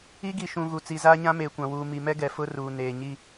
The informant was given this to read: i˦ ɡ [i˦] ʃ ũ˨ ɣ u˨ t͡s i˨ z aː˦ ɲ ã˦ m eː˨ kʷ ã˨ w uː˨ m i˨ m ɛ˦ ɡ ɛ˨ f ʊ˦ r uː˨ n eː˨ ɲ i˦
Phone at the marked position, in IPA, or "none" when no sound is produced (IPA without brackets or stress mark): i˨